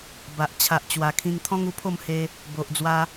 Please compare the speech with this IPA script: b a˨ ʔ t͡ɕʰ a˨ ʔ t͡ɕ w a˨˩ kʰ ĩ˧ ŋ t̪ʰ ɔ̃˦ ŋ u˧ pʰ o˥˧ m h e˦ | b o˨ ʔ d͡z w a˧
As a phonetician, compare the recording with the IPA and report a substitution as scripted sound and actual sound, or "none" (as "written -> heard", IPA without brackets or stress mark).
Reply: none